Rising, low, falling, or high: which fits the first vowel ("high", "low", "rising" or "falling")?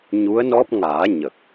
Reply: rising